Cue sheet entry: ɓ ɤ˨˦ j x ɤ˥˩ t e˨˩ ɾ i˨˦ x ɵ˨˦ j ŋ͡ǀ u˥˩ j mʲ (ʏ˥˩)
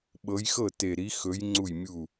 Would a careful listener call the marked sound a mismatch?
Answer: yes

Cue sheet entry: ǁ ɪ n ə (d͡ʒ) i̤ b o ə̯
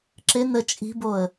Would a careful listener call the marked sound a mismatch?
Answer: yes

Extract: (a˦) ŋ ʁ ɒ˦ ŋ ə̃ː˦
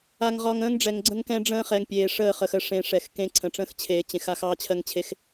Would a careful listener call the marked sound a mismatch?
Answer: no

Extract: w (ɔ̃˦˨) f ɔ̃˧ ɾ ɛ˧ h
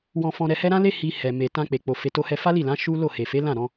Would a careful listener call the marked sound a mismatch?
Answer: yes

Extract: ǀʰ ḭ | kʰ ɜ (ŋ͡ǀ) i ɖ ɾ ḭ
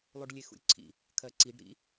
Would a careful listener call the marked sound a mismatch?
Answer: yes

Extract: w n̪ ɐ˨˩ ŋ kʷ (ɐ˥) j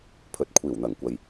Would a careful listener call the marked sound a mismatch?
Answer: yes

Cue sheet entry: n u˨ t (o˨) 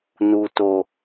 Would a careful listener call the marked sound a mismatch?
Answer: no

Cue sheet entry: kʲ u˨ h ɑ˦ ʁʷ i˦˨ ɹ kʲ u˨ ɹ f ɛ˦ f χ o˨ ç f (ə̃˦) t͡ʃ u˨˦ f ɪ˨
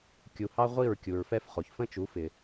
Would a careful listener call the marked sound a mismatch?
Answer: no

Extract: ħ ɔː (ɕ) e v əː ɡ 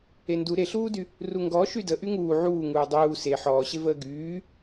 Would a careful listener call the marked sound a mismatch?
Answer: no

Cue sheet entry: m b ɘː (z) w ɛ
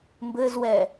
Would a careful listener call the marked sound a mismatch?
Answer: no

